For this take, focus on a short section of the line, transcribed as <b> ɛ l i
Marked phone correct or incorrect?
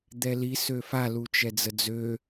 incorrect